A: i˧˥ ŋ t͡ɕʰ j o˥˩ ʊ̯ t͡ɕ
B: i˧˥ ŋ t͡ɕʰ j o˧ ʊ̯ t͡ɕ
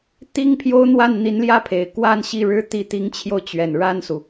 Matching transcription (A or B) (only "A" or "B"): B